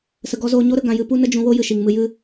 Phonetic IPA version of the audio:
s ə˧ ɡ ɔ˦ z oː˦ ɲ o˦ ɾ ə˧ ɡ ã˧ j ɨ˦ p u˦ n ə˦ d͡ʒ ũ˧ w o˦ j ɨ˨ ʃ i˨ ŋ m ɨ˧ j ɨ˦

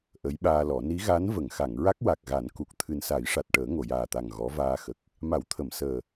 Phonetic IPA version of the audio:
ʔ ə˧˥ j ɓ aː˧ l ɔ˨˩˦ n i˧˥ ɣ a˧˥ n v ə˨˩˨ ŋ x a˨˩˨ ŋ ɹ a˦˥ k̚ w a˨˩ k̚ ɣ a˨˩˦ n k u˨˩ k̚ t̪ʰ ɨ˨˩ n s a˨˩˦ j ʂ a˨˩ t̚ ʈ əː˨˩˦ ŋ o˨˩˨ j aː˨˩ t̪ a˨˩ ŋ ɣ ɔ˧˥ v aː˧ x ə˨˩ k̚ | m a˨˩˦ w t̪ʰ ə˨˩˨ m s əː˨˩

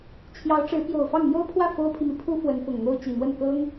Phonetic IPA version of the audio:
t͡ɕʰ j ɑ˧˥ ʊ̯ ʈ͡ʂ ɻ̩˧˥ p j o˨˩ ʊ̯ f ɑ˥˩ ŋ n̪ j o˥ ʊ̯ pʰ w ä˥˩ f o˥ ʊ̯ pʰ i˨ m i˩ pʰ u˥ f w ə˧˥ n f ʊ˨˩ ŋ n̪ o˥ ʊ̯ t͡ɕ i˨˩ n̪ w ə˥˩ n k ɤ˥ ŋ

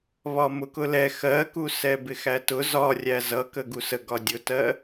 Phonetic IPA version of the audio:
β ɒ m ʊ k ʊ l ɛ x ɜ k u s ɛ b ɪ x æ t ʊ z ɒ rʲ æ z ʌ k ə ɡ u s ə ɡ ɒ dʲ ʊ t ɜ

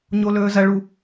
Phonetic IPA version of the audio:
ɲ o l ɵː z ɐ ɭ u

